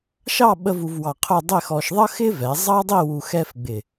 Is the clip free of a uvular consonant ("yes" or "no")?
no